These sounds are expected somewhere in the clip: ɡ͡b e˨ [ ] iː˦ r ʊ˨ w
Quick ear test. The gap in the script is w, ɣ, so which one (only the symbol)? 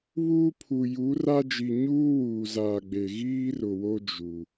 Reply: ɣ